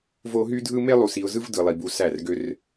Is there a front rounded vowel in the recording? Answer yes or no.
yes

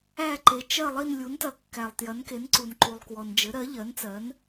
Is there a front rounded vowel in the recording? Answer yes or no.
no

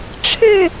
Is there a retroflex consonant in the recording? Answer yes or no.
yes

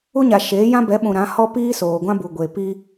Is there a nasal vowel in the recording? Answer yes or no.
yes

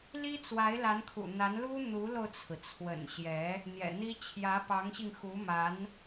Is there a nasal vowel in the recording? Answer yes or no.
no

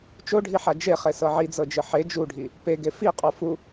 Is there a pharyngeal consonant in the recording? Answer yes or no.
yes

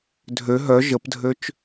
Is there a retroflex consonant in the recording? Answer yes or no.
no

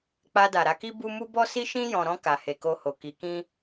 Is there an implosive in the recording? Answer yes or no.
no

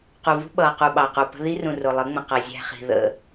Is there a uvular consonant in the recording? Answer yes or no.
yes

